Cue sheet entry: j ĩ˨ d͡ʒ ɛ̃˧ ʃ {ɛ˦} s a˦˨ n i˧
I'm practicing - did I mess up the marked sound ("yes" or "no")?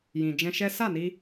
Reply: no